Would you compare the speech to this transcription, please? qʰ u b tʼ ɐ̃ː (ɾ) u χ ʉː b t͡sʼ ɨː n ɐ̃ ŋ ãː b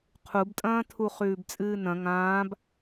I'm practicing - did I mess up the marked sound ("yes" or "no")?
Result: yes